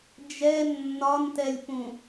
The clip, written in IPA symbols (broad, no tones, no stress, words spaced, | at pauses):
d͡ʒɛ nːɒntɛlʲpũ